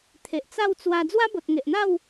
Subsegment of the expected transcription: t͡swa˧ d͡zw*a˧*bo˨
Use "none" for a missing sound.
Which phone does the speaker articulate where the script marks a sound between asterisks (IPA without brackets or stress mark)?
a˦